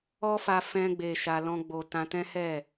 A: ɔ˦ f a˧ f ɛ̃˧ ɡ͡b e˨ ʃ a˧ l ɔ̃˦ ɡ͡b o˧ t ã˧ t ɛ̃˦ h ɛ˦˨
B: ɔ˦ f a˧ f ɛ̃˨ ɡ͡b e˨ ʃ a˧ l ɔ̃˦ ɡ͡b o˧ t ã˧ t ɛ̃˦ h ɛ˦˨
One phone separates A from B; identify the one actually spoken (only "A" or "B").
A